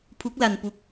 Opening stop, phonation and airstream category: aspirated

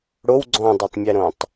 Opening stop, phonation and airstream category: click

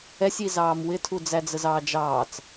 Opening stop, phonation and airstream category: aspirated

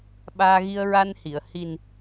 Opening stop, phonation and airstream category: implosive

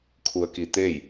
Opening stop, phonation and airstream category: aspirated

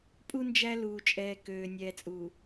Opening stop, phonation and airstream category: ejective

